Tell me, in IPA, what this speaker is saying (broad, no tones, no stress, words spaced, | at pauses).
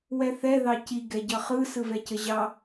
wɛθɛ ðɑci ɡɛɟʌχɯ sɯvɛcəʑɑ